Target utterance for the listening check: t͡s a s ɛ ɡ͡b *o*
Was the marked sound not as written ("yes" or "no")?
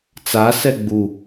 yes